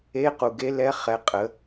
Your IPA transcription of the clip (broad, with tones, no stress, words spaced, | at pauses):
e˧˥qu˩ɡe˧˥lɛ˧˥ χɛ˩˧ qʼə˩˧